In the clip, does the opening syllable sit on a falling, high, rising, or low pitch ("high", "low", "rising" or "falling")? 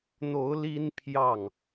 rising